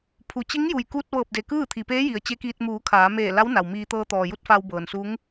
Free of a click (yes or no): yes